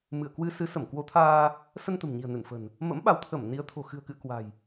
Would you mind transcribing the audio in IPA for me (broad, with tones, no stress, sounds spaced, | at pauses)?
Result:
m ɨ˧˩ ə̯ k w ɨ˧ s ɨ˨˦ s ə˧˩ m k w o˨˦ t̪ʰ aː˧ | s ə˧ n t̪ ə̤˨˩ m ɲ i̤˨˩ ə̯ n ɨ˧˩ n f ə̤˨˩ n | m ə̰˧˥ m ɓ a˨˦ w t̪ʰ ə˧˩ m n i˨˦ ə̯ t̪ʰ o̤˨˩ x ɨ̤˨˩ ə̯ k ɨ̰˧˨ ə̯ k w a̤˨˩ j